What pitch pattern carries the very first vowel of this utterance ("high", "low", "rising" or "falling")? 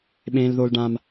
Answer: high